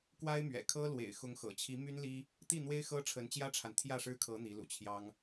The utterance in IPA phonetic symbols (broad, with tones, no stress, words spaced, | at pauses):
kwa˥ɪ̯mɥɛ̰˨˩ kʰɤ˥lwḛ˨˩ɪ̯xʊ˧˥ŋ xɤ̰˨˩t͡ɕʰi˧˥my˥nli˥ | t̪i˥˩ n̪we˥ɪ̯xɤ˥ ʈ͡ʂʰə˧˥nt͡ɕjä˥ʈ͡ʂʰa˨n t̪ʰjä˥˩ʂɻ̩˥kʰɤ˧˥ n̪i˧˥lṵ˨˩t͡ɕʰjɑ˥ŋ